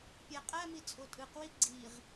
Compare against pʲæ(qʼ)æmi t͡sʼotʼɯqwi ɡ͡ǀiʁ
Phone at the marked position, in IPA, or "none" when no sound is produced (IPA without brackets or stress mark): qʼ